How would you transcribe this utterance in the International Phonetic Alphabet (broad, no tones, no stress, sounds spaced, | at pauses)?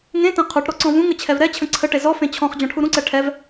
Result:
ŋ ẽ t ẽ qʰ u ʈ ɾ ɔ ǀ ɔ̃ v ũ ŋ ə t͡ɕʰ ɛ v ɾ ɛ t͡ɕʰ ə̃ ǀʰ ə ʈ e z ɔ f ẽ t͡ɕʰ ɔ̃ χ d͡ʑ ɔ̃ ʈʰ u ɾ ũ ǀ ɛ ʈʰ ɛ v